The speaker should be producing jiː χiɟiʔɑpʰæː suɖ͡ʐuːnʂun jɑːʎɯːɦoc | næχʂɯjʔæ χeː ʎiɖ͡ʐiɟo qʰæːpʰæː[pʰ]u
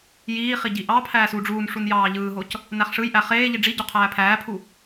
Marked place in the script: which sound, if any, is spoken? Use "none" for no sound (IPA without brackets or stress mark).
pʰ